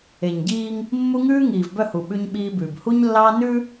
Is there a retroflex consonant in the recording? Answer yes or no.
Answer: no